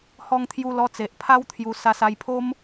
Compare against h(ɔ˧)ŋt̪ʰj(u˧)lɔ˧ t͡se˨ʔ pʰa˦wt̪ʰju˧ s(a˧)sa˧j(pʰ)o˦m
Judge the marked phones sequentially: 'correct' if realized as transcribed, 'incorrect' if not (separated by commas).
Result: correct, correct, correct, correct